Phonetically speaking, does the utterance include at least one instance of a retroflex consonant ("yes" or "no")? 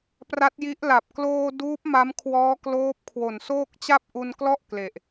no